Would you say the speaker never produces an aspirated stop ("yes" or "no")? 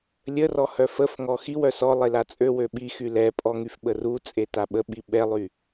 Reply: yes